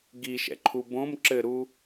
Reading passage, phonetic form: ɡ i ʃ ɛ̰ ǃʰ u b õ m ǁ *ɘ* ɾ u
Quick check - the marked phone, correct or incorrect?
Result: correct